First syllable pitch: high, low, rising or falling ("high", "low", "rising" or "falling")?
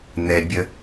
low